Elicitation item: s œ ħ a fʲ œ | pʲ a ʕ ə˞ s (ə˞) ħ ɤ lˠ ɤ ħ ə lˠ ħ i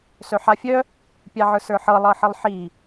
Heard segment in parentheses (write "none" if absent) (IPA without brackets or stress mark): ə˞